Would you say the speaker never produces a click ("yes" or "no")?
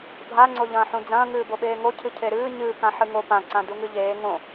no